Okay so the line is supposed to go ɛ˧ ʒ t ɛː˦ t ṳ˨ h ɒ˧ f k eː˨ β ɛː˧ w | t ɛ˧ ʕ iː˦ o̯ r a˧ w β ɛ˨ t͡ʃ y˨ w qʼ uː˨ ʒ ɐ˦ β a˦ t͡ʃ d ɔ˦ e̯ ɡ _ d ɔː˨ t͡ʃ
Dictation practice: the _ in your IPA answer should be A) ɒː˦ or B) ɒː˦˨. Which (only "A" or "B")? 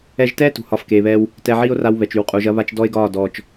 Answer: B